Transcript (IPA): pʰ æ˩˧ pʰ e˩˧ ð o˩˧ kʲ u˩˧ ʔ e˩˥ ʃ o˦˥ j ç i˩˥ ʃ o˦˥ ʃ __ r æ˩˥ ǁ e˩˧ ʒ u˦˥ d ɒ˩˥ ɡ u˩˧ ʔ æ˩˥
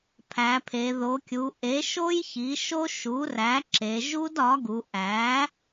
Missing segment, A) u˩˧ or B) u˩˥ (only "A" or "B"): B